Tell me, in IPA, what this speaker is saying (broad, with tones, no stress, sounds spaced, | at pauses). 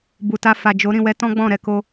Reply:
b u˨ t a˧ f a˨ d͡ʒ o˨˦ ɾ ĩ˦˨ w ɛ˨˦ t ɔ̃˦ ɡ͡b ɔ̃˦˨ ɾ ɛ˧ k o˧